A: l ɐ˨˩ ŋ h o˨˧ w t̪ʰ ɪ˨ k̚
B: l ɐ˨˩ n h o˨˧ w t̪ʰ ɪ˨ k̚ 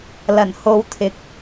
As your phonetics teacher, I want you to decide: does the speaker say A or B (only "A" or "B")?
B